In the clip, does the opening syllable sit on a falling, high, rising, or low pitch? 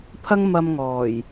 high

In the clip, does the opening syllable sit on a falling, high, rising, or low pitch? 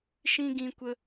high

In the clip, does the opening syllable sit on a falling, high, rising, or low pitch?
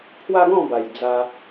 high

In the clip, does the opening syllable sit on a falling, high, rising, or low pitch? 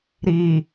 low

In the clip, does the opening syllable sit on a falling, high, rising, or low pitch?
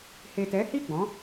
low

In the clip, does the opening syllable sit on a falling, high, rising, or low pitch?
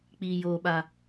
low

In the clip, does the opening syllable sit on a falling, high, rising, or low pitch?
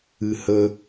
low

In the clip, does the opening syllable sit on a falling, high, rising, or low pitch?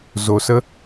low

